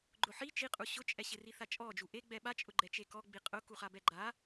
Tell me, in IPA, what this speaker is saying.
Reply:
ɡ͡ǃ ʊ ħ i t͡ʃ i qʼ u ɕ ʊ t͡ʃʼ ɛ ɕ ɪ r i θ a t͡ʃʼ ɔ d͡ʒ u ʔ e ɡ͡b ɛ ɓ a t͡ʃʼ ʊ ɡ͡ǃ ɛ t͡ʃ e k ɔ ɡ͡b i qʼ ʊ k u χ a b ɛ ɡ͡ǃ a

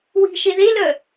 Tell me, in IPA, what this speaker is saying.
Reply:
w i̤ ʃ e ð e l œ

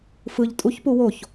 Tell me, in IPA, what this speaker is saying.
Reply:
f ɯ ʎ tʼ u ç p u w o ç

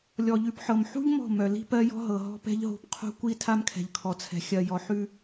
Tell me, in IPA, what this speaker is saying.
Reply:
lʲ ɔ˨ ʎ ʉ˨ p ħ ɤ˨ m ħ ṳ˦ ʎ m ɔ̤˦˨ m œ˨ l i̤˦ p ɜ˦ j ɔ̤˦ ɦ ɤ˨ ɦ ɔ̤˦ p ɛ̤˦ ʎ ɦ o̤˦˨ p qʰ o̤˦ kʷ i˦ tʰ a˦ m kʰ ɛ̤˨ ʎ kʰ ɔ˨ t͡sʰ ɛ̤˨ xʲ ɜ˨ j ɔ˨ ħ ʉ˦

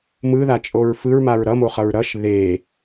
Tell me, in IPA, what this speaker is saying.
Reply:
m ɯ ð a t͡ʃʼ o ɹ f ɯ ɹ m a ɹ ɾ ʌ m o χ ʌ ɹ ɾ ʌ ʃ ð e

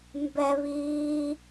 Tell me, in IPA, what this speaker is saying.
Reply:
m b ɛ β iː

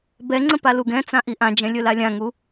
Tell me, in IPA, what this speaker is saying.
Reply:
b ɛ ŋ͡ǀ ə̃ p a l u ɡ ɛ̃ t͡s ã ʔ i ʔ ã d͡ʒ ɛ̃ lʲ ɵ l a lʲ ã ŋ u

